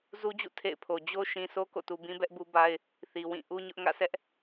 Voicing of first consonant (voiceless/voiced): voiced